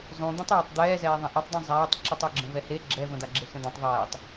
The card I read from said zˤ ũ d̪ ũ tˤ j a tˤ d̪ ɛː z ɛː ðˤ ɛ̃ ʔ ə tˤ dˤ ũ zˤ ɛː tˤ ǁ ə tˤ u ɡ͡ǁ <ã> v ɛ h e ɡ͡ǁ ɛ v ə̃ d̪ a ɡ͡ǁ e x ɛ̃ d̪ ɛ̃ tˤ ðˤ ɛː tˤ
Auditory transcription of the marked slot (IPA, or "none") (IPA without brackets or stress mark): ə̃